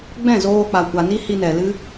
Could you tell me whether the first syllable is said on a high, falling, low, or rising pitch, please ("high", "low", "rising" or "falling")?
falling